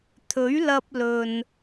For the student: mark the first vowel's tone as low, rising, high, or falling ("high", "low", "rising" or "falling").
rising